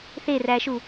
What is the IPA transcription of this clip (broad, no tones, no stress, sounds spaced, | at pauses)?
θ e r æ ʃ u